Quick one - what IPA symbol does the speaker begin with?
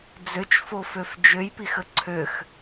d͡z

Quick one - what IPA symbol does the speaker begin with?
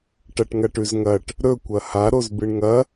ʈ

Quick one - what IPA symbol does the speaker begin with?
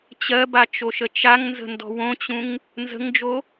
t͡ɕ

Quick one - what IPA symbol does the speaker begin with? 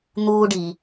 n̪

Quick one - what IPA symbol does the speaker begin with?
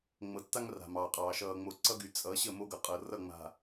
ŋ͡m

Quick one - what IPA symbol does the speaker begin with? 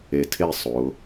e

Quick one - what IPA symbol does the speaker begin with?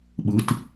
ɓ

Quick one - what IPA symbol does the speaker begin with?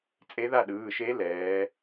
t͡sʼ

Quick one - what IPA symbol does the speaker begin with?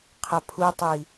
qʰ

